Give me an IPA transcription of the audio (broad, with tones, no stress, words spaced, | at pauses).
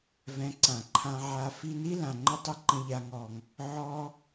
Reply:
vɛ̃˧ǀã˨ ǃʰã˧ʕa˧ fi˧ni˦ lã˨ŋ͡ǃə˦tˤə˦ǃə̃˧ ʎa˧ŋɔ˨ŋ | ʕɔ˦